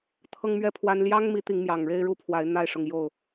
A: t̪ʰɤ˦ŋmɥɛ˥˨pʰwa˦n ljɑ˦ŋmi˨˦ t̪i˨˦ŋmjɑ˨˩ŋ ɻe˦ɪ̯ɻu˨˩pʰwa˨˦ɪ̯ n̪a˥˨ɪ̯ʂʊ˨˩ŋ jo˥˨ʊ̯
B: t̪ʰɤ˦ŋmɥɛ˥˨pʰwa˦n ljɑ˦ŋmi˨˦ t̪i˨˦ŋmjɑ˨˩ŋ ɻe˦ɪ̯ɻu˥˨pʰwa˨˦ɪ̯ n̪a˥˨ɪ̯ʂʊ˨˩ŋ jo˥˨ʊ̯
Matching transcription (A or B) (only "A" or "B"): B